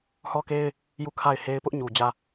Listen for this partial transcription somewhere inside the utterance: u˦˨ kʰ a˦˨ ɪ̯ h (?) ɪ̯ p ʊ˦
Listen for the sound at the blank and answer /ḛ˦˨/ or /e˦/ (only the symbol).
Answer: e˦